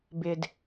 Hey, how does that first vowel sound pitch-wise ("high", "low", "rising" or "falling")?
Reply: low